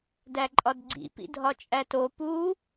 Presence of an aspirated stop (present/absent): absent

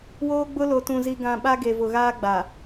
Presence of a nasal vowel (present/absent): present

